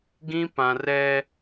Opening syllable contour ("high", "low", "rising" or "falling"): high